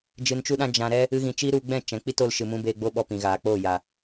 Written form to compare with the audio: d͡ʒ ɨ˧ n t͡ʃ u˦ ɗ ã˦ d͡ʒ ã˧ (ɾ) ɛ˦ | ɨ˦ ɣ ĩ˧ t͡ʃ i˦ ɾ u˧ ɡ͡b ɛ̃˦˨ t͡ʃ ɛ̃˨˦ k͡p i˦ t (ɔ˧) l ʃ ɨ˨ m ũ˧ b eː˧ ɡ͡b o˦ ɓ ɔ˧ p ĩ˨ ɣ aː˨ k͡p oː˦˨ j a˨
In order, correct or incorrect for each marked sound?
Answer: correct, incorrect: o˧

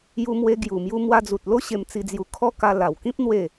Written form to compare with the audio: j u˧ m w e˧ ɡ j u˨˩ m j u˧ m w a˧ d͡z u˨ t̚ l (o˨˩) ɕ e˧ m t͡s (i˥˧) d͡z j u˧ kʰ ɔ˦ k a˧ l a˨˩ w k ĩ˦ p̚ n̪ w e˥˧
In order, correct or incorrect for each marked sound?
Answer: incorrect: o˦, incorrect: i˧

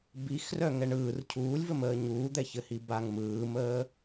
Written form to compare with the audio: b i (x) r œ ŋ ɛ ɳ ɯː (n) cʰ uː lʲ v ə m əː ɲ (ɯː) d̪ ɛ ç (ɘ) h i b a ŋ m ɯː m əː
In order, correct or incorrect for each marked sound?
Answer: correct, incorrect: r, incorrect: uː, correct

